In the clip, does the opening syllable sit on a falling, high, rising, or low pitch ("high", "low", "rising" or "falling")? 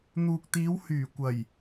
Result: low